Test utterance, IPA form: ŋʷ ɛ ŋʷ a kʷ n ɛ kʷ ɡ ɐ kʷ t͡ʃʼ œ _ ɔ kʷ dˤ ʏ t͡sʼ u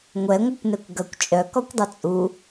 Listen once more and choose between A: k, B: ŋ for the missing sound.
A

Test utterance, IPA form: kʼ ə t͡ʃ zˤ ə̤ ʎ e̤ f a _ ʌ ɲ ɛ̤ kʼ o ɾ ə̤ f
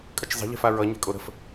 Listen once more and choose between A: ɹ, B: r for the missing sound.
A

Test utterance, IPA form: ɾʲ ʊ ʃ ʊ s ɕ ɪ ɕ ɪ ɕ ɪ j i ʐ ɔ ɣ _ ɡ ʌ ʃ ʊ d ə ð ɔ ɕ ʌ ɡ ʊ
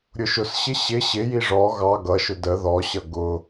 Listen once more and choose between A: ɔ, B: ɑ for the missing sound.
B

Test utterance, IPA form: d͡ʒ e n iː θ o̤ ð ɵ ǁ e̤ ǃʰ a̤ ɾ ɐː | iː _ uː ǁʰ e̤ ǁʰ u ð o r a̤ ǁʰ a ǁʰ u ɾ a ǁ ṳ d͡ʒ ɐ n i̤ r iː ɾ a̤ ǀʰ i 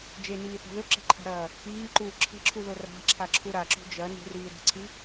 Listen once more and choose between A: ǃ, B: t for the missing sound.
A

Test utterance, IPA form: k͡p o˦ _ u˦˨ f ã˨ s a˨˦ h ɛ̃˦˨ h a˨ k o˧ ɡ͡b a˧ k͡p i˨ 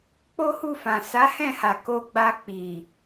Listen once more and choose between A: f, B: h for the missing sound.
B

